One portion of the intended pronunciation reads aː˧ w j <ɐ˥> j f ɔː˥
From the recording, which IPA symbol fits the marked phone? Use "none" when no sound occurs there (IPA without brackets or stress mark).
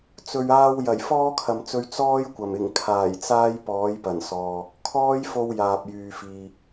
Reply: ɐ˨˩